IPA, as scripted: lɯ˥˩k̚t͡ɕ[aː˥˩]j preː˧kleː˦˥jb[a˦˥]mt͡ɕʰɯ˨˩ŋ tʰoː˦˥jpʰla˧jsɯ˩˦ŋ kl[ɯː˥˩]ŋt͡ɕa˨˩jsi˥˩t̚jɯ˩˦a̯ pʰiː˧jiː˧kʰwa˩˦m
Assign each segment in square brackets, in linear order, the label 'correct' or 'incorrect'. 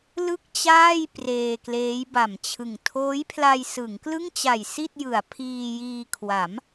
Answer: correct, incorrect, incorrect

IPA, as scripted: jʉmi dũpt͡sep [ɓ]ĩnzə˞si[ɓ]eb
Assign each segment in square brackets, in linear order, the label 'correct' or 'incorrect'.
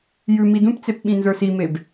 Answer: correct, incorrect

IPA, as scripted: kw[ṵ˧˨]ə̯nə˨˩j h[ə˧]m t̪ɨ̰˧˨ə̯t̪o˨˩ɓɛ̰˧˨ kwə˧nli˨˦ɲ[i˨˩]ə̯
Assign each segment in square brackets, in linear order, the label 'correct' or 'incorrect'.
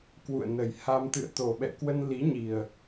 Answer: correct, incorrect, correct

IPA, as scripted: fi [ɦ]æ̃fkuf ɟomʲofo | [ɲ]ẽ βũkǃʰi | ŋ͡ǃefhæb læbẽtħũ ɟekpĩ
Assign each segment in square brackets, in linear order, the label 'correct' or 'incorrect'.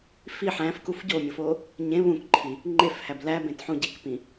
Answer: incorrect, correct

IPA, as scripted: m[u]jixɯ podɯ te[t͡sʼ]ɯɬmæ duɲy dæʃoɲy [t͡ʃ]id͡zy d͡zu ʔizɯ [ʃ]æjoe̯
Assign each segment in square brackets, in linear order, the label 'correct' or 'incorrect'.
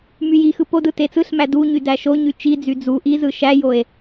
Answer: incorrect, incorrect, correct, correct

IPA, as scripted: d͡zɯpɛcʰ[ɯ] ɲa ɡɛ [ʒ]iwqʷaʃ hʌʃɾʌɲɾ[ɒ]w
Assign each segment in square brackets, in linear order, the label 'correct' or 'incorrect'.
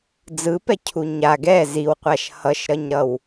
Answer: incorrect, incorrect, incorrect

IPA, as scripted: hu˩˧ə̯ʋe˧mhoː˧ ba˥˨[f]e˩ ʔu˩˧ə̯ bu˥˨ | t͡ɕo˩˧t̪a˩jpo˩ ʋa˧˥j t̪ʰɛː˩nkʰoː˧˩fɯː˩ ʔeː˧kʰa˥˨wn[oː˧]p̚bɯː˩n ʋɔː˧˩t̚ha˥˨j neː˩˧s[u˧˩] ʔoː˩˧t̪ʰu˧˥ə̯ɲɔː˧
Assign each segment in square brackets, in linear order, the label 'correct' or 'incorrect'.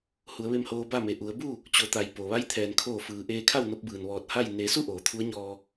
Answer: incorrect, incorrect, incorrect

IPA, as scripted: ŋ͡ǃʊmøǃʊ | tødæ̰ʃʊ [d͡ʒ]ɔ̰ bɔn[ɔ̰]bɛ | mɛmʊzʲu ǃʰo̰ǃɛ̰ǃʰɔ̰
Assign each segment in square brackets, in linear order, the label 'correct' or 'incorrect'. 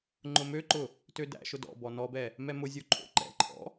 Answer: incorrect, incorrect

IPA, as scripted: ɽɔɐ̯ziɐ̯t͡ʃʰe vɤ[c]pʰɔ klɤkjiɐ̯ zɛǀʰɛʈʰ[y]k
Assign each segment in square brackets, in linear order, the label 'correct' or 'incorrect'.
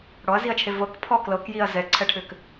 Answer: incorrect, incorrect

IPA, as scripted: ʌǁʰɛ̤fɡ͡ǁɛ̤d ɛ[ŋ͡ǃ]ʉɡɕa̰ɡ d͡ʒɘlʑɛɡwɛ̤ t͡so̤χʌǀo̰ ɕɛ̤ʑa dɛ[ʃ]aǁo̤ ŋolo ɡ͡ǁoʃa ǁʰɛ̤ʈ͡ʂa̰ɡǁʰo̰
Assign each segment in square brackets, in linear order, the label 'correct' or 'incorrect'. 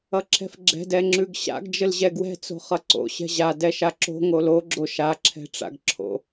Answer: incorrect, correct

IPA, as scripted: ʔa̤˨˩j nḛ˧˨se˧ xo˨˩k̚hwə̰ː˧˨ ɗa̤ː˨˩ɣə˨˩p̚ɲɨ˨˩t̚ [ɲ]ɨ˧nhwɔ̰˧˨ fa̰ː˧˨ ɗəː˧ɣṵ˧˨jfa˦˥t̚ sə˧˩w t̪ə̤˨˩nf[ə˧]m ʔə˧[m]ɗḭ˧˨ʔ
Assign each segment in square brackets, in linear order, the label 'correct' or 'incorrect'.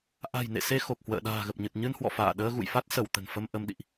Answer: correct, correct, correct

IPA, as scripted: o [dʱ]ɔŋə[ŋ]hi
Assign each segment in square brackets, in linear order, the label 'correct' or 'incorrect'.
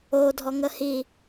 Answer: correct, incorrect

